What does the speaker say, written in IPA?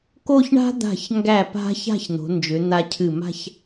k o˥˧ ç ɳ a̤˥ d̪ a̤˧˩ ç ŋ ɡ æ˧˩ p a̤˧ ç a̤˥˧ ç n̪ o̤˩˧ n d͡ʒ ʏ˩˧ n̪ a˧ cʰ ɨ˧˩ m a̤˥˧ ç

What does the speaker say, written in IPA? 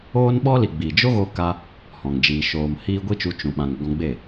oː˦ n ɓ ɔ˦ l i˨ ɡ͡b i˨ d͡ʒ o˦ ɣ o˧ k a˧ | h ɔ̃˨ ŋ d͡ʒ iː˨ ʃ oː˨ m h iː˧ ɡʷ i˦ t͡ʃ u˧ t͡ʃ ũ˨ ɓ ã˨ ŋ ɡ ɔ̃˧ ɡ͡b e˦˨

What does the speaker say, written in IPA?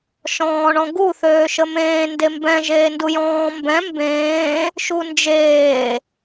ʃ ɔ̃ː ɳ ɔ̃ ɡ u θ øː ʃ ə m ẽː n d e m b ɛ̃ ʒ eː n d u j ɔ̃ː m b ɛ̃ m b ẽː | ʃ u n d͡ʒ eː

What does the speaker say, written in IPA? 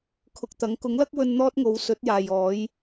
kʰ ʊ˨ k̚ t̪ ɐ˨˥ ŋ k ʊ˨˥ ŋ l ɐ˥ k̚ w ɵ˧ n n̪ ɔː˥ t̚ ŋ o˨˧ w s ɵ˨˥ t̚ j aː˨ j ɔː˨˥ j

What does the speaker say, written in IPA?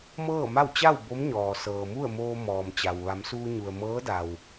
m ɤː˥˨ m a˥˨ w t͡ɕ a˥˨ w b o˧˥ m ɲ ɔː˩ s ɤː˩ m u˥˨ ə̯ m oː˧ m ɔː˩ m t͡ɕ a˩ w ʋ a˩˧ m s uː˧ ɲ u˩ ə̯ m ɤː˧˥ d a˩ w

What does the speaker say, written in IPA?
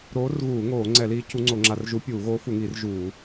ɾ oː˧˥ r ɣ uː˧˩˧ ŋ oː˧˩˧ ŋ͡ǀ ɛ˧˩˧ l iː˧˥ cʰ u˧˥ ŋ͡ǀ o˧˩˧ ŋ͡ǁ a˧˩˧ r ʒ u˧˥ pʲ uː˧˩˧ ɣ oː˧˥ f u˧˩˧ ŋ iː˧˩˧ r ʒ uː˧˩˧

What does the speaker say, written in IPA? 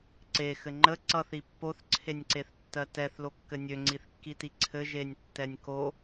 ǀ e x ɘ ŋ͡ǃ ə ǀ ʌ θ i pː o θ ǀʰ e nʲ ǀ e θ tː ɜ t ɛ θ l o kː ɘ nʲ ø ŋ͡ǀ i θ kː i t i ǀʰ ɘ ʒ e nʲ tː ɛ nʲ k o

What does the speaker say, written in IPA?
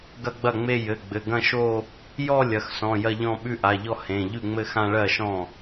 ɡ ɐ˥˧ ɡ͡b ɐ˥˩ ŋ͡m e˥˧ j ɘ˩˧˩ ɡ͡b ɘ˩˧˩ ɡ ɐ̃˥˧ ʃ o˥˧ | j ɔ˥˧ lʲ ɐ˩˧˩ x s ɔ̃˩˧˩ j ɐ˥˧ ʎ ɔ̃˥˧ ɓ ʉ˥˧ ʔ a˩˧˩ ʎ ɔ˥˧ h ẽ˩˧˩ ʎ ʉ˥˩ ŋ͡m ɘ˥˧ x ã˥˧ ɭ ɜ˥˩ ʃ ɔ̃˥˩

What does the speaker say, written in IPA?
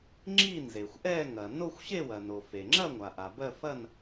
ŋ͡ǁ i˥˧ n z e˩ xʷ ʔ ɛ˥˧ ŋ ɐ˩ n o˥˧ xʷ ɕ e˥˧ w ɐ˩ n o˩ f e˩ ŋ͡ǁ ɐ˥˧ ŋʷ a˩ ʔ a˩ b ɜ˥˧ f ɐ˥˧ n

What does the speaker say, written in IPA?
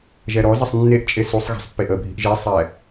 ʒ ɛ ɾ ɔ z ɛ sˤ nː e ʔ t͡ʃʼ e s u sˤ ɣ ɛ̤ sˤ pː e ʔ ə bʱ i̤ ʔ ʒ e sˤ ɛ

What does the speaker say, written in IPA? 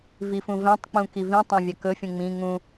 v i f ũ v ɛ̃ tˤ k͡p ũ k i v ĩ tˤ ɛ̃ vʲ a k ɵ fʲ ũ ŋ͡m ĩ ŋ ũ

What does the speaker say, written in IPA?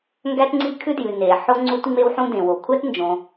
ŋ ɡ æ˥ t ŋ͡ǀ i˥ kʰ ʉ˥ d j ʉ˩ n e˩ ħ o˥ ŋ͡ǀ u˥ t ŋ͡m e˥ w ħ ũ˥ d ẽ˩ w o˩ kʷʰ æ˥ t n d͡ʒ õ˩

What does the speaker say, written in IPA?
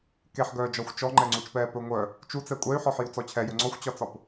k e ħ ɡ œː d͡ʒ ɒ xʷ t͡ʃ ɔ ŋ͡ǃ ɛ ŋ͡ǀ u t͡ʃ p ɛː p ɵ ŋʷ œ | t͡ʃ u t͡s ɛ kʷʼ ɛ y̯ ħ ɔ ħ j u t͡s ɔ t͡ɕʰ ɛ j ɵ ŋ͡ǀ ɔ xʷ t͡ɕ ɒ t͡s ɒ p

